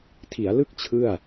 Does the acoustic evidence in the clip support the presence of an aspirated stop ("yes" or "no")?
yes